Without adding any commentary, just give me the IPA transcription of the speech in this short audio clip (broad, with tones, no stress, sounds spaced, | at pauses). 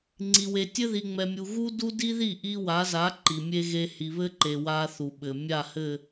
ŋ͡ǀ i˨ w e˨ tʲ ɘ˦ ð i˨ ŋ͡m ɛ˨ mʲ u˨ ɣ u˦ d u˦ d i˦ ð i˦˨ ʔ i˦ w a˨˦ z a˨˦ ǃ i˨ mʲ e˦ ɣ e˦ h i˨ β ɘ˦ ǃ e˨ w a˦ θ u˨ ɓ ɘ˨ mʲ a˦˨ h ɘ˦˨